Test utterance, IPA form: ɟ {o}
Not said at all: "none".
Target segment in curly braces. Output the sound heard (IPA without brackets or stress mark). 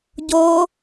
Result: o